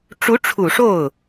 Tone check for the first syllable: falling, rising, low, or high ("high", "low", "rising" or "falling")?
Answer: rising